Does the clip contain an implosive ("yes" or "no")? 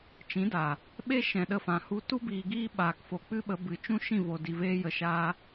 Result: yes